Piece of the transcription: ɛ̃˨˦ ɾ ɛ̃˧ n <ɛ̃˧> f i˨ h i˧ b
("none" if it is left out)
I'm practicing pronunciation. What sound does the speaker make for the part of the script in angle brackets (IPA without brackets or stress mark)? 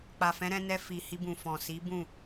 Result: ɛ˧